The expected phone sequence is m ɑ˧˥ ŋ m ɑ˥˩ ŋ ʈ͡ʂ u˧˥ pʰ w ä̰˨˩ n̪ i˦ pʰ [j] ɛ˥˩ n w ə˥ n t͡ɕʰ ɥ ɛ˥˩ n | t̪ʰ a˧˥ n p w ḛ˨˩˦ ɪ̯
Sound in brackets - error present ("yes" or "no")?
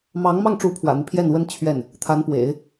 no